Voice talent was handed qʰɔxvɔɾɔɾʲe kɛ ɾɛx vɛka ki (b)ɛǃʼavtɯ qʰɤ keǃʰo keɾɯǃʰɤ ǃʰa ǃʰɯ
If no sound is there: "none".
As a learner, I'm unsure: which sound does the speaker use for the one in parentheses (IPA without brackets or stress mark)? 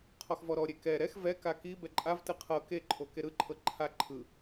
b